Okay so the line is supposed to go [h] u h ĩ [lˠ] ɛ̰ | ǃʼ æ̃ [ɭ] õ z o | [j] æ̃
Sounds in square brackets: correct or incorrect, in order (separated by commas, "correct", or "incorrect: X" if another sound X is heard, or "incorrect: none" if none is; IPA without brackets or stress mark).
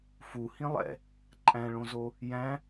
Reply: incorrect: f, correct, correct, correct